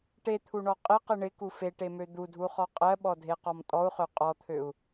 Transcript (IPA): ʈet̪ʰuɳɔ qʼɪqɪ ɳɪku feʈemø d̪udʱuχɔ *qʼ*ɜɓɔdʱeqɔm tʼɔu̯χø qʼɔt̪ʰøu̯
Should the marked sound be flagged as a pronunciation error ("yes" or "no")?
no